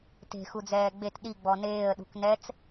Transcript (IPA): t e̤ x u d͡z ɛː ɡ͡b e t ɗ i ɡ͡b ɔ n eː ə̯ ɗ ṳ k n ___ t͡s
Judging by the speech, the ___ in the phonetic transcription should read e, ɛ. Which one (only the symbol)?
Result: ɛ